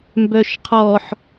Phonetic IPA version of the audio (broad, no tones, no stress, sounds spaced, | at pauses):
m b œ ʃ qʰ ɔ ħ